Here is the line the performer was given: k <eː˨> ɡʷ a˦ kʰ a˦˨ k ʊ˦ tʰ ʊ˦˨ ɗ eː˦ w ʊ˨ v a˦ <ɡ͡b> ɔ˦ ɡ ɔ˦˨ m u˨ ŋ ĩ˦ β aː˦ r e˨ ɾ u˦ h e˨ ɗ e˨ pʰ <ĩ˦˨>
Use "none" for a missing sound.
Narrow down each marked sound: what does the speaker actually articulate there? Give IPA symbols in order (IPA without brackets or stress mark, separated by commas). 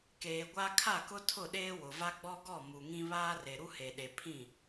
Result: eː˨, ɡ͡b, ĩ˦˨